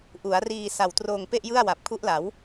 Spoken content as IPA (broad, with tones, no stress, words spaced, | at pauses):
ʔu˩˦a̯ riː˧ sa˨˩wtroː˧ŋpe˥˩ʔ jɯ˥˩a̯wa˨˩p̚kʰu˦˥ʔla˩˦w